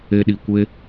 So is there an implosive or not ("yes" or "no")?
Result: yes